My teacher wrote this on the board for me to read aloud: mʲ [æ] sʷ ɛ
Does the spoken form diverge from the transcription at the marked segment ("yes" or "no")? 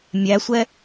no